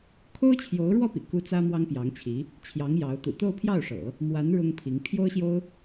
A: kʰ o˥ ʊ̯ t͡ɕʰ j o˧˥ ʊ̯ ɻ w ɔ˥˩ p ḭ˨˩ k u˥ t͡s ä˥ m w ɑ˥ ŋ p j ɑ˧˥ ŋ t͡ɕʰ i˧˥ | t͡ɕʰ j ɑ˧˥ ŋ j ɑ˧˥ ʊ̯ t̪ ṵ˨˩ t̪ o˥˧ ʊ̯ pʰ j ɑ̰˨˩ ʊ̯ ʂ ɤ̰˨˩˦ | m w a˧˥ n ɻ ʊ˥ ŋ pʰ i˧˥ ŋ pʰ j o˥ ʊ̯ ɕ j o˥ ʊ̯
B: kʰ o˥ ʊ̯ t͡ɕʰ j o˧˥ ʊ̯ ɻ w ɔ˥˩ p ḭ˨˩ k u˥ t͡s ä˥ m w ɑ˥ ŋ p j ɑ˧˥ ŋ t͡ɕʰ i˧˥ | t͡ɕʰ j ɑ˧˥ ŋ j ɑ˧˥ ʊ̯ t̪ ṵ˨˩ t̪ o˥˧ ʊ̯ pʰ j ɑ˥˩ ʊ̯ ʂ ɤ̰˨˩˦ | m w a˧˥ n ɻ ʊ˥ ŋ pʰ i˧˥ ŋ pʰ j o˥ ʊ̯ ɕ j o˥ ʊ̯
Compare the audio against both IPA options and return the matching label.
B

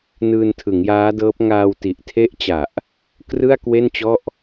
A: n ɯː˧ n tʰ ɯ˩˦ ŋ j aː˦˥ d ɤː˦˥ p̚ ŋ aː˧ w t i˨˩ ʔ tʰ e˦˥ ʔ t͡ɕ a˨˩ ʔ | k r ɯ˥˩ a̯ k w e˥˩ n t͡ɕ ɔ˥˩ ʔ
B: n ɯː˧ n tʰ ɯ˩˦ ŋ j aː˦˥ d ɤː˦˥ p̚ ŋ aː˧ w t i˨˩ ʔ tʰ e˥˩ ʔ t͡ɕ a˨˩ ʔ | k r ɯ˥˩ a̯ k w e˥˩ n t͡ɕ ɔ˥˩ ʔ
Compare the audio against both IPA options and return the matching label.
A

